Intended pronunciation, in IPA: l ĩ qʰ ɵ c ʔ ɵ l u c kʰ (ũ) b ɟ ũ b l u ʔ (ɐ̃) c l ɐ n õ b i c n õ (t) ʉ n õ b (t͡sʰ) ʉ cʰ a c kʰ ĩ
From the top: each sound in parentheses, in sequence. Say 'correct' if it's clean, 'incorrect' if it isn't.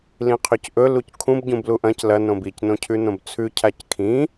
correct, correct, incorrect: cʰ, correct

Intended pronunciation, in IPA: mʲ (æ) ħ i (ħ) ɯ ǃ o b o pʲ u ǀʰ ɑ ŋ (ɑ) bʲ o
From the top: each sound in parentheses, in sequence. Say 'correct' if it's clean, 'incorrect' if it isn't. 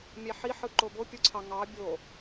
correct, correct, correct

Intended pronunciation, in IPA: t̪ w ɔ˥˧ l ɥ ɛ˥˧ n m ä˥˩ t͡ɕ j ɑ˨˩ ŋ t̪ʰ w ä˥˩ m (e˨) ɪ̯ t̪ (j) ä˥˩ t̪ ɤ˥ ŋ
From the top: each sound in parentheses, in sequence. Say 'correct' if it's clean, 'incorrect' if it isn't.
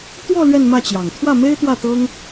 incorrect: e˥, incorrect: w

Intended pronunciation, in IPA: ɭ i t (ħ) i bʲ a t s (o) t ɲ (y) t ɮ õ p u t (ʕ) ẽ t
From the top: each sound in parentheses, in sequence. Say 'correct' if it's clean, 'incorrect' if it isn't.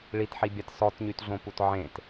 correct, incorrect: ɔ, correct, correct

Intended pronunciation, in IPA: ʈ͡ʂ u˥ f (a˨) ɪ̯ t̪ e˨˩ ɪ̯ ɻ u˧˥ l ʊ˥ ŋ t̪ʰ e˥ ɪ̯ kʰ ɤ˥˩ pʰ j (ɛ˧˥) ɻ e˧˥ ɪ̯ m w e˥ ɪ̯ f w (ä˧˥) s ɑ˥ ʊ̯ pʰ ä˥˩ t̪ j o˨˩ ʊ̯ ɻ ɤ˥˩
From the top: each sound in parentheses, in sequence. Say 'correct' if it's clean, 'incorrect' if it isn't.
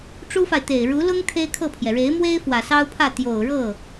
correct, incorrect: ɛ˩, incorrect: ä˨˩

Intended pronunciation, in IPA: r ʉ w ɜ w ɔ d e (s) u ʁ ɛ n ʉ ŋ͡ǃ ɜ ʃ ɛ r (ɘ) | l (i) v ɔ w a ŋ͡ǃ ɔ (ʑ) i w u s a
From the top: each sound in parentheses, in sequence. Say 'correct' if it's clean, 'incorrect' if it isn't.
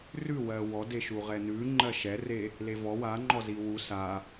incorrect: ʃ, incorrect: e, incorrect: e, incorrect: z

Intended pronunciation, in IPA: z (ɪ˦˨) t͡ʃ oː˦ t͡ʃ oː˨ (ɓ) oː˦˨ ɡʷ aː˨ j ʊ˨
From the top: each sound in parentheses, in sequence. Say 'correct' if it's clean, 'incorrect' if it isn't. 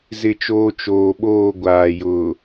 correct, correct

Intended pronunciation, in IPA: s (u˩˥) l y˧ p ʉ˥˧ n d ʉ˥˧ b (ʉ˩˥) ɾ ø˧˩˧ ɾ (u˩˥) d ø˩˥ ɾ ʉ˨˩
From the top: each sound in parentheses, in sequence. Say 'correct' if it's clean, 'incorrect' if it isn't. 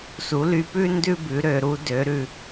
correct, correct, correct

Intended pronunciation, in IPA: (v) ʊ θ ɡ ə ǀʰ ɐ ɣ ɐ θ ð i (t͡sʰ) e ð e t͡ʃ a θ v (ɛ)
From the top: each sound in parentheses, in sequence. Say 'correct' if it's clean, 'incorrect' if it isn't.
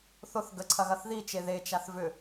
incorrect: θ, incorrect: t͡ʃ, incorrect: ʏ

